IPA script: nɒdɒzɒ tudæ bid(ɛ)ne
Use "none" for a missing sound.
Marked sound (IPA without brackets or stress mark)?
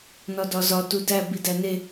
æ